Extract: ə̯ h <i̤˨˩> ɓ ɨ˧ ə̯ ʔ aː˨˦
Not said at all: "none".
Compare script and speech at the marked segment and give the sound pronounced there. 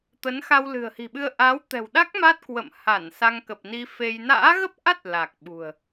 i̤˨˩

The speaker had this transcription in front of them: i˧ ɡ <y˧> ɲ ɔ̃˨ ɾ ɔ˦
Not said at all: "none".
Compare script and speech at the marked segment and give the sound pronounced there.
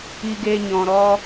e˧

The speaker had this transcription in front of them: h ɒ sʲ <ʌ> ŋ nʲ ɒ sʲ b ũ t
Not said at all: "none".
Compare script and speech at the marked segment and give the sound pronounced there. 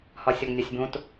ɔ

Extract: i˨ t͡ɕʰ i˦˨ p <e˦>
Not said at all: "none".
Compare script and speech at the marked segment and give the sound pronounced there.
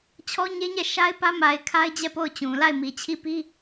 i˦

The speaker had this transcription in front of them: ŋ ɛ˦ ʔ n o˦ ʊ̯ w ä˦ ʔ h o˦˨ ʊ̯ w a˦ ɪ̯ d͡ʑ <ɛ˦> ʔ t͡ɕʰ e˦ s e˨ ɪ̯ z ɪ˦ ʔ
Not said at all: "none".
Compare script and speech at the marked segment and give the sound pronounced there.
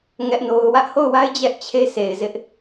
ɛ˦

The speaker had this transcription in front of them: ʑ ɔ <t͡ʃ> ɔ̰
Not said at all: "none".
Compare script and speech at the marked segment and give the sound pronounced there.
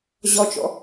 t͡ʃ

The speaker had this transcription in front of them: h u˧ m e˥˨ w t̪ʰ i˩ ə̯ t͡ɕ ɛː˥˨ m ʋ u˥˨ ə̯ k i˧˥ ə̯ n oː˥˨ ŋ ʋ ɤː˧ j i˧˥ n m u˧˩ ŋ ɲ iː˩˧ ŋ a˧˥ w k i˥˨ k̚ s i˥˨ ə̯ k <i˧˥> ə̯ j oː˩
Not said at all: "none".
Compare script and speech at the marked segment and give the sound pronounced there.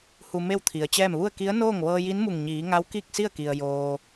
i˩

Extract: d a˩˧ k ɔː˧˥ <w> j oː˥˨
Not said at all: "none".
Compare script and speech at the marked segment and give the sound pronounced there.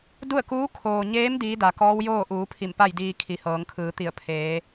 w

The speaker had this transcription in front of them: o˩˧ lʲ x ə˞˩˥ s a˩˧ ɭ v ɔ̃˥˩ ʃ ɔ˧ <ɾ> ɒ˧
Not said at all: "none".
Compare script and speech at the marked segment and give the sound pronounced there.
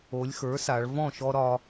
ɾ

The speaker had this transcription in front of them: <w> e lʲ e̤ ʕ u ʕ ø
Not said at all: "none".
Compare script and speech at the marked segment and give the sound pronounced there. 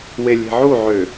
w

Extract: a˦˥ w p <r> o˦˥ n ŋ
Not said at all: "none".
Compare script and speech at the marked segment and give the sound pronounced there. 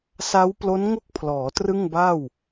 l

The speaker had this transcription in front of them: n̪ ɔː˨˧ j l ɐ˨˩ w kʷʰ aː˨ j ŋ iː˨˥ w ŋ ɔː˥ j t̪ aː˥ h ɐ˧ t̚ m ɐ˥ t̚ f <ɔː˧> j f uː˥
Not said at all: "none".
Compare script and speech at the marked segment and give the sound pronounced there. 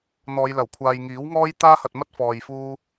ɔː˧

